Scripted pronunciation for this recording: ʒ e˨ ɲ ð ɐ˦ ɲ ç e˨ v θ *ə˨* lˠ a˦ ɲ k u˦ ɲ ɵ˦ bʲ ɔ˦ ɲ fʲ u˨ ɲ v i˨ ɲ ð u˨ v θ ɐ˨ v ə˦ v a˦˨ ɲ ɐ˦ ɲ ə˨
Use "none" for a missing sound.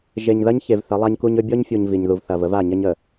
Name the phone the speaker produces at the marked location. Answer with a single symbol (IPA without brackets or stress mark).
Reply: ə˨˦